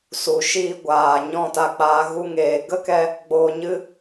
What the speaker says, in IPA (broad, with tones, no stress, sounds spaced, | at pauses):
s u˨ ʃ iː˧ ɡʷ aː˨ ɲ ɔ̃˦˨ t a˧ k͡p aː˧ ɣ u˧ ŋ eː˨ ɡ ə˦ k ɛ˧ | ɡ͡b oː˧ ɲ ɨ˦